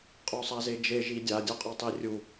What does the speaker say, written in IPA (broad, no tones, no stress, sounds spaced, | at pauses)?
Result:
qʼ o sˤ a z e d͡ʒ e ʒ i dʲ a dʲ ɔ qʼ ɔ tˤ i rʲ u